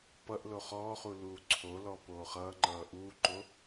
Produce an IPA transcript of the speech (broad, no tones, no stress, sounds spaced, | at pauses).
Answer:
p ʌ ʔ l o χ ɔː χ u l uː ǀʰ o l ɔ p oː χ ʌː ŋ͡ǃ ʌː ʔ uː ǃ o